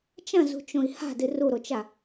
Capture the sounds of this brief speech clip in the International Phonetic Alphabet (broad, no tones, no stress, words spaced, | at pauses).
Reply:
t͡ʃɐ̃zṳt͡ʃõi̯ ha̤dɨ ruɾot͡ʃa